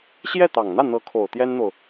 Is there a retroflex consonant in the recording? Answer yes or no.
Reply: no